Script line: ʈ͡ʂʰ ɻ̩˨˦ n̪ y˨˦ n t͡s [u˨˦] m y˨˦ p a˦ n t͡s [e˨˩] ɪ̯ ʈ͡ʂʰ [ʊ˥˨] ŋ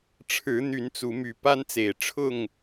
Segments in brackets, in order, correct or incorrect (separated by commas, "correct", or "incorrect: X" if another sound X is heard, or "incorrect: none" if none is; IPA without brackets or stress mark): correct, correct, correct